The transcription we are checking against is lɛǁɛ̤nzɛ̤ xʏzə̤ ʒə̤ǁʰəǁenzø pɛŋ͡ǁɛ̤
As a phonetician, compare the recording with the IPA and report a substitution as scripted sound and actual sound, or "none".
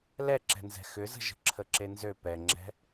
none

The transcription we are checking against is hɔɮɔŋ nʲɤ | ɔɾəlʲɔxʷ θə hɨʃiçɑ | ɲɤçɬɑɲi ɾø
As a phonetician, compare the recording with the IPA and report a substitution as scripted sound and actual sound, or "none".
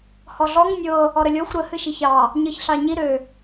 θ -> ɾ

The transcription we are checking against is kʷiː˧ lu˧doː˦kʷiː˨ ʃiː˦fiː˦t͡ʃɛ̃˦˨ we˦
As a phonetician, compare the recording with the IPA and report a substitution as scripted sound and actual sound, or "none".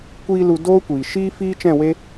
none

